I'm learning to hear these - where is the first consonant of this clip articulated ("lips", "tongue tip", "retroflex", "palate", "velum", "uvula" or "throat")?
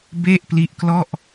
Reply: lips